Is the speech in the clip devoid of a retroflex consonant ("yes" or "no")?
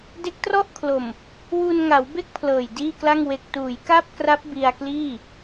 yes